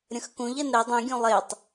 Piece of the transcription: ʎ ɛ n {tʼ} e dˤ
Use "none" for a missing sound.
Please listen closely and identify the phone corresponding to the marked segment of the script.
ɾ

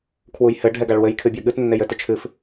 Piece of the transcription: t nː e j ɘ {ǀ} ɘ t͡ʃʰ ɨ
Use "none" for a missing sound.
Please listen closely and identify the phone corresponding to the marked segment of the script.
t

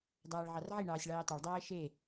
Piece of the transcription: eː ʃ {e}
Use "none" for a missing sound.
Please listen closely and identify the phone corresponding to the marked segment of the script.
e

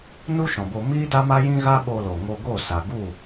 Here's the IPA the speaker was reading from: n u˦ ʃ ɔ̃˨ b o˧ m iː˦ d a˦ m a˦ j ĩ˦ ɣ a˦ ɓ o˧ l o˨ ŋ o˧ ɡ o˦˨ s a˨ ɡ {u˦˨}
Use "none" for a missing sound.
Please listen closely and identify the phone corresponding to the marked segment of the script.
u˦˨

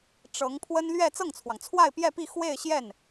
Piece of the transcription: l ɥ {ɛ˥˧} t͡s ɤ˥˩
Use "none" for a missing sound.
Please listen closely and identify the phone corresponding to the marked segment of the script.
ɛ˥˧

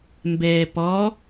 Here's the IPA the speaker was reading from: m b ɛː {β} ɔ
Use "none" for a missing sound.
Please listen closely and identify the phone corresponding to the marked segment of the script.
p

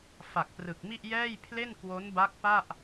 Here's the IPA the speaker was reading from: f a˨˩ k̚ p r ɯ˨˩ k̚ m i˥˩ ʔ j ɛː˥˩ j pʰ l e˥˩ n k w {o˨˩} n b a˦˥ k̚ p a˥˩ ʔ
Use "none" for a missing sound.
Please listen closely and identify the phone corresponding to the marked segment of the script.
o˦˥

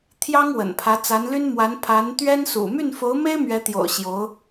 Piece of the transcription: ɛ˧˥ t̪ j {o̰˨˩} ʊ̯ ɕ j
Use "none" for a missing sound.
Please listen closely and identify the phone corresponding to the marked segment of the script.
o̰˨˩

